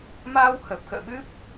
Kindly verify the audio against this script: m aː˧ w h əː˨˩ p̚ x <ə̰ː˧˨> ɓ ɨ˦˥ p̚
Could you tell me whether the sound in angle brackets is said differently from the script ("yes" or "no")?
no